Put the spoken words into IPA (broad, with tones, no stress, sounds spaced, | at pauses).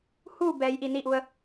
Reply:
h u˥˨ b ɛː˩˧ j ʔ i˩ n i˥˨ ʔ u˧ ə̯